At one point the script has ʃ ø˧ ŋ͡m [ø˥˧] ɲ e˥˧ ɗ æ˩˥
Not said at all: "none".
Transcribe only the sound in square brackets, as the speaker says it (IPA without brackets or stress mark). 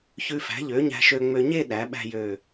ø˧